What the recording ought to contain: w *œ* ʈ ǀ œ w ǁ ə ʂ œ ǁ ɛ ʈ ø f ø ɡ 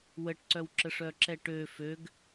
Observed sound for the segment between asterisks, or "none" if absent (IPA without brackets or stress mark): ə